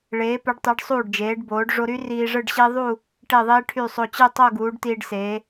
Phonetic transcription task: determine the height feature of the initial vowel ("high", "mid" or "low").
mid